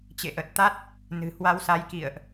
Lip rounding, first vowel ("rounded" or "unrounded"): unrounded